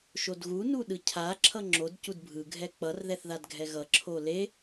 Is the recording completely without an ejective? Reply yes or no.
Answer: yes